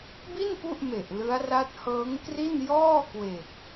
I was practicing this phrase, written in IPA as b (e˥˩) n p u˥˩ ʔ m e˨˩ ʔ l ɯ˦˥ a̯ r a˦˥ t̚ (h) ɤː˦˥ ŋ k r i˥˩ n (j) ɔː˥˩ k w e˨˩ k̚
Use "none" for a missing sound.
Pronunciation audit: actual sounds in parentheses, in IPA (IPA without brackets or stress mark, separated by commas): i˥˩, h, j